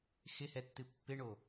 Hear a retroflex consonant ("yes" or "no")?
yes